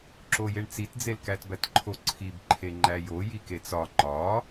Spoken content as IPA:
ǁ o j e ɳ t͡s i t d͡z e l k æ t b æ t ǃʰ o ǀʰ i b ǃʰ e ŋ͡ǃ æ j o j i k e t͡s ɒ ŋ͡ǃ ɒ

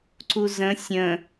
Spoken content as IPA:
ǀ u z ə̃ sʲ ə̃

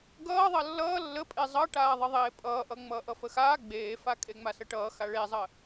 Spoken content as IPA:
ɡ ʌː ðˤ ʌ lː ʌː lː ə pʼ e zˤ ʌ ʈ aː ðˤ ə ðˤ eː pʼ ʌː ʔ ʌ ŋ͡m ʌː ʔ ʌ f ə x aː ɡ͡b eː f a kʼ e ŋ͡m a s ə ʈ ʌː x a ɭ e zˤ ə

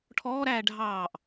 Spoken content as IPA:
ʈʰ ɔː ɾ æː ɖʱ ɑː ʔ

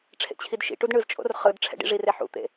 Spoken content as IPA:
ʈ͡ʂʰ ḛ t͡ɕʰ i d ʃ ḭ ʈ u d ɳ ɯ z t͡ʃʼ o̰ r χ ɯ d ʈ͡ʂʰ ɛ̰ ɖ ḭ ʐ i r e ħ ṵ t̪ ḛ

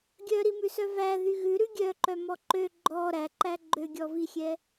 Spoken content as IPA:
ɡʲ œ ɾ i m ʉ s œ v æ ð y ɣ ʉ ɾ ʉ ɡʲ œ ǃ œ m ɔ ǃ ø ɡ͡ǃ ɔ ɾ æ ǃ æ ɡ͡ǃ ø ɡʲ ɔ v i xʲ ɛ

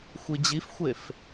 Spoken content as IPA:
xʷ i d͡ʑ i f xʷ e f

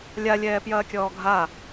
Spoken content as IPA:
lʲ a lʲ ɛː p j ɐː kʲ ɔː ɡʱ a

